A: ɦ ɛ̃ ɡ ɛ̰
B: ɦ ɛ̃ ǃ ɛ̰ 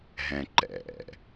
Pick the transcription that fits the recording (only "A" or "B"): B